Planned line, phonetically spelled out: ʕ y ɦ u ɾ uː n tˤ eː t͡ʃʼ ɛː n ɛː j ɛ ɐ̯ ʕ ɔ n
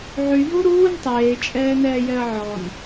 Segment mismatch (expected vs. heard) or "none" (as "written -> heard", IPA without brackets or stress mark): none